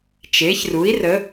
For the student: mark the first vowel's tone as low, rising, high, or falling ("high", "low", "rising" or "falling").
rising